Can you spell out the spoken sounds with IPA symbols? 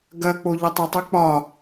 ɡ ɐ k͡p o ʎ ɒ tˤ ə tˤ ɨ k͡p ɒ

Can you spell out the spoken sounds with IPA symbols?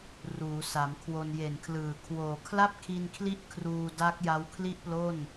r uː˩˦ s a˩˦ m kʰ w o˧ n j e˨˩ n kʰ l ɯː˨˩ kʰ w oː˨˩ kʰ l a˥˩ p̚ kʰ i˧ n kʰ l i˦˥ ʔ kʰ r uː˧ d a˦˥ k̚ j a˦˥ w kʰ l i˥˩ ʔ p l o˥˩ n

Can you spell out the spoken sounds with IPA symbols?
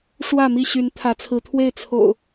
ʂ w ä˥˨ m i˥˨ ɕ y˨˦ n t̪ʰ ä˨˦ t͡sʰ ɹ̩˨˦ t̪ʰ w e˥˨ ɪ̯ t͡sʰ o̰˨˩ ʊ̯

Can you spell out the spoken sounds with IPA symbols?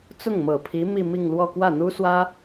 t͡s ʊ˥˩ ŋ m ɤ˨˩ pʰ i˧˥ m i˥˧ m i˥˧ ŋ l w ɔ˥˧ k w ä˥˩ n̪ u˥ s w ä˥

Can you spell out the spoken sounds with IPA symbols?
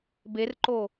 b e r ǃ o

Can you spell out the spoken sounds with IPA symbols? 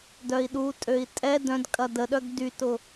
d œ i̯ ɗ u tʼ ø i̯ tʼ ɛ d œ̃ d kʼ ɐ d ə ɗ œ ɡ d y t ʊ

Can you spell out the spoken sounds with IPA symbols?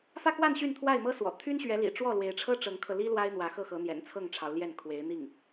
f ä˥˧ k w a˥˧ n ɕ y˥˧ n t̪ʰ w a˥˩ ɪ̯ m ɤ˥ s w ɔ̰˨˩ t̪ʰ y˥ n ɕ ɥ ɛ˧˥ l ḭ˨˩ ʈ͡ʂ w ɔ˥˩ l w e˧˥ ɪ̯ ʈ͡ʂʰ ɤ˥ ʈ͡ʂ ɤ˧˥ ŋ kʰ ɤ˧ l i˥ l w a˥ ɪ̯ n̪ w ä˧˥ x ɤ˥˩ x ɤ˧˥ n̪ j ɛ̰˨˩ n t͡sʰ ɤ˥˩ ŋ ʈ͡ʂʰ ɑ˧˥ ʊ̯ l j ɛ˥˩ n kʰ w e˧˥ ɪ̯ n̪ i˥˩ ŋ

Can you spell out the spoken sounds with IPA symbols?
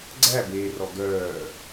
ɡ͡ǀ æ b eː r ɔ ɡ œː

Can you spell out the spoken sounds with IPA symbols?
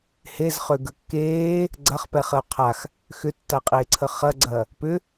h e z χ ø ɡ ə kː eː | ɡ͡ǀ ɐ χ p ɛ χ ə o̯ qʰ a x | x ʏ tː a qʼ eː ǀʰ ə χ ɐ ɡ͡ǀ ɐː | p ʏ

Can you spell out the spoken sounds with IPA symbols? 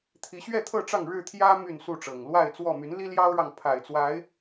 t̪ʰ i˨˦ ɕ ɥ ɛ˥˨ t̪ʰ ɤ˥˨ ʈ͡ʂ ɑ˥˨ ŋ ɻ ɻ̩˥˨ t̪ʰ j ä˦ m y˥˨ n s u˥˨ ʈ͡ʂ ɤ˨˩ ŋ l w a˥˨ ɪ̯ t͡s w ɔ˥˨ m y˨˦ n l i˦ l j ɑ˦ ʊ̯ ɻ ɑ˨ ŋ pʰ a˨˩ ɪ̯ t͡s w a˨˦ ɪ̯

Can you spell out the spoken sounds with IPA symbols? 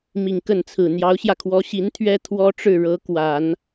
m i˨˩ ŋ k ə˥˩ n t͡sʰ ɹ̩˨˩ n̪ j ɑ˧˥ ʊ̯ ɕ j ä˧ kʰ w ɔ˧˥ ɕ i˧˥ n t̪ʰ ɥ ɛ˥ t̪ʰ w ɔ˥ ʈ͡ʂ ɻ̩˥˩ ɻ ɤ˧˥ k w a˨˩˦ n

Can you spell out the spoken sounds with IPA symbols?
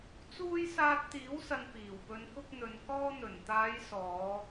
t͡s uː˧ j s aː˧ t̚ t̪ iː˨˥ w s ɐ˨ n p iː˨˩ w p ɵ˨˧ n k ʊ˧ k̚ n̪ ɵ˨ n k ɔː˧ n̪ ɵ˨˩ n t̪ aː˨˧ j s ɔː˨˧

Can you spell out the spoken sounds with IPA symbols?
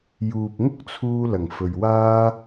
j uː˨ p̚ ŋ ʊ˥ k̚ t͡sʰ uː˧ l ɐ˨˩ ŋ f ɵ˨ ɥ w aː˥

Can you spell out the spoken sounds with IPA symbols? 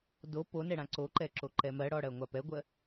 d o p o n ɛ ɽ ã ǀ o ǃ ɛ ǁ o ǃ ɛ m ɜ ɽ ɔ ɽ ɜ ŋʷ a p ɛ ɡʷ ɜ

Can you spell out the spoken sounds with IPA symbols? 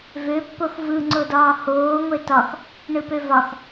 v ø pː o x v ɯ ŋ͡ǀ o d ɒː h oː ŋʷ e t ɒ x | ɳ ɯ p ø v ɒ x

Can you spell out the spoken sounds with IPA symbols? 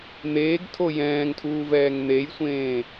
n̪ eː ɡ tʰ o j ɛ̃ː ŋ tʰ uː v ɛː ŋ n̪ e j sʷ ẽː

